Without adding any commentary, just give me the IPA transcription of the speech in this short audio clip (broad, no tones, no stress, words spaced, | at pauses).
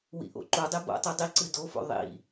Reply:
wḭʔo̰ǃudˤi bo̰tˤi dˤiǀɨ dofo̰ ðˤḭ